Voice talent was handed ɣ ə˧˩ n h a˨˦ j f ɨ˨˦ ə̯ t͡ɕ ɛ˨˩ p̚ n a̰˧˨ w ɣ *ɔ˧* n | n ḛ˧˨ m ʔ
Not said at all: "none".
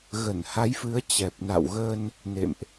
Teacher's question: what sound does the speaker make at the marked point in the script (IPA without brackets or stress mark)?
ə˧